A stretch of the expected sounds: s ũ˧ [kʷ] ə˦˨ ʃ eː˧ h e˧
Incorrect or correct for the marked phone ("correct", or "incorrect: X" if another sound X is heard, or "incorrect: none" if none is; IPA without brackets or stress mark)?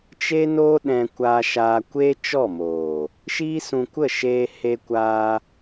correct